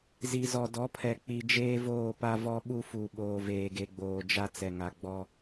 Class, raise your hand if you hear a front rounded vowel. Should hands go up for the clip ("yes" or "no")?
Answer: no